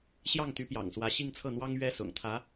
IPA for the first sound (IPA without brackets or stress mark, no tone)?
ɕ